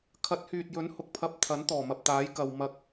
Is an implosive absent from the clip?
yes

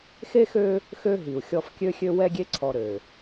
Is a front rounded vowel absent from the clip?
no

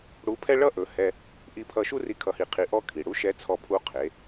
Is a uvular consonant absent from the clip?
no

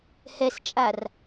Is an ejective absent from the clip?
no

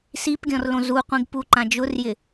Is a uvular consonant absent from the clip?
no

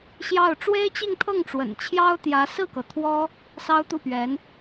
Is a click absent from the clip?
yes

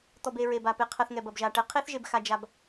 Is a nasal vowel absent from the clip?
yes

